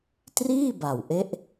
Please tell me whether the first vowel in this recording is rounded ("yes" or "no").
no